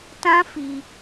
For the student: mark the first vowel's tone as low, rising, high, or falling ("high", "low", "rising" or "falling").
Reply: high